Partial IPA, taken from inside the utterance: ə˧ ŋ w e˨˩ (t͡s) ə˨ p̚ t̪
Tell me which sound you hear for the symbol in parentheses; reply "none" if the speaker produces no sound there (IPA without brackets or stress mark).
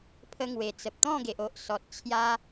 t͡s